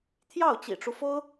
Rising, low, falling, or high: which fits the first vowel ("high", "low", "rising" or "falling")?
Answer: falling